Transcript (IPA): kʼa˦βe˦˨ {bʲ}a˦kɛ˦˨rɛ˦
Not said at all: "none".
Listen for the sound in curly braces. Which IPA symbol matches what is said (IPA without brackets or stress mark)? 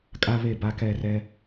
b